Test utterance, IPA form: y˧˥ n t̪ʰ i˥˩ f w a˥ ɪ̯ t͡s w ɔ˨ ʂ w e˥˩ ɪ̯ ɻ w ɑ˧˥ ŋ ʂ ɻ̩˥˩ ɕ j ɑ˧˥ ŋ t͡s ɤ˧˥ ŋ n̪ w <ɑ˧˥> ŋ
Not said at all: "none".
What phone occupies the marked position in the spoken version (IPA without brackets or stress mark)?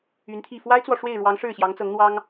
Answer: ɑ˥